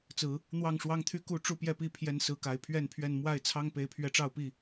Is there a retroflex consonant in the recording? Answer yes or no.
yes